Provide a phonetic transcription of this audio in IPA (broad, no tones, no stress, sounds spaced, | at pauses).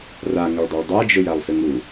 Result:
r a ŋ ʊ ɭ dˤ e ɭ dˤ a d͡ʒ ʊ j a lˠ s ɨ ŋ u